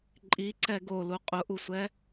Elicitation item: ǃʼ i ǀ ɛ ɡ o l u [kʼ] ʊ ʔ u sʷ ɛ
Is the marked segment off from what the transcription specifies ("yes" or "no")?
yes